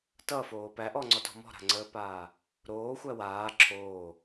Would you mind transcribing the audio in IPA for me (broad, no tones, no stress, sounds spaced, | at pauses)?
t ʌ f oː p æ ʔ ɔ ŋ͡ǀ ɔ t ɔ̤ m ɔ̤ ɾ a̤ ŋ͡ǀ əː p aː | ɾ oː xʷ æ w aː ǁʰ oː